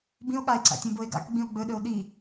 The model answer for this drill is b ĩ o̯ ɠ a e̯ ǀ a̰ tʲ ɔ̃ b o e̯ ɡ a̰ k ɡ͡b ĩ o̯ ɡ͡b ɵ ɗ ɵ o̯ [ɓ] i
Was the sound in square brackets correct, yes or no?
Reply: no